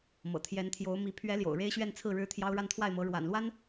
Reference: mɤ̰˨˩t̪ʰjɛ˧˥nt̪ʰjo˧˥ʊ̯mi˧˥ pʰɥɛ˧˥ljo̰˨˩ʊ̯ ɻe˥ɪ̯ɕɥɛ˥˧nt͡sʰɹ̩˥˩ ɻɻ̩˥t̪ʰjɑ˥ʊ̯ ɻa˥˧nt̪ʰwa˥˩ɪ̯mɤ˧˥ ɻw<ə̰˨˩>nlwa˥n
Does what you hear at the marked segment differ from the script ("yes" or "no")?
yes